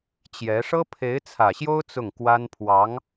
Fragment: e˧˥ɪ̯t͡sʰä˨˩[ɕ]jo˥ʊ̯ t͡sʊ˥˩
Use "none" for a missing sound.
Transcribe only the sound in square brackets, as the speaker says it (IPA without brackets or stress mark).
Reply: ɕ